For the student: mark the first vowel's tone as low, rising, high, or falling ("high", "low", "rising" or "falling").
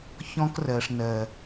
high